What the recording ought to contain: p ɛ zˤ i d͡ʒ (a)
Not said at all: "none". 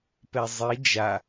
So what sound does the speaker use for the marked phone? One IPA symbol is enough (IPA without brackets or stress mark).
a